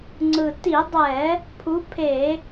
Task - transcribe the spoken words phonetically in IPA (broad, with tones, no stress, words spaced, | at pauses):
ŋ͡ǀɯ˨˩ti˧˩˧dˤɛ˧˩˧ | pʰu˨˦pʰe˧˩˧